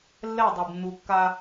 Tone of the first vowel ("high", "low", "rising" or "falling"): falling